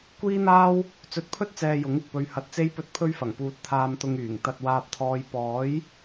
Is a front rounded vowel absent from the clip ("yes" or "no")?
no